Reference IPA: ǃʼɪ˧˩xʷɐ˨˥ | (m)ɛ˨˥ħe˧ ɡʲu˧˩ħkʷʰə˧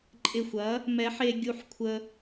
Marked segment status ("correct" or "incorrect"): correct